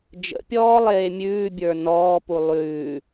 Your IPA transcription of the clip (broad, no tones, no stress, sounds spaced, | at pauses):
d͡ʒ ə̰ pʲ ɔː lˠ eː mʲ ʉː bʲ ə˞ n ɔː p u lˠ ʉː